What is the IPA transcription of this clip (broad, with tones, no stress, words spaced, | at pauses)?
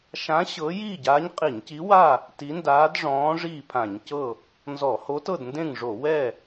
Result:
ʃã˧˥ ɕɤ˧˥ jiː˥˨ɟaː˧˥ɲqʼi˧˩˧ɲci˧˥ wa˥˨ | ti˧˥ndaː˧˥dʐɔ̃ː˧˥ ʐiː˥˨pʰã˧˩˧ɲcɤ˥˨ | nzɔ˧˩˧ho˧˥tɤ˥˨dndẽ˥˨ŋ ʐo˧˩˧wɛ˥˨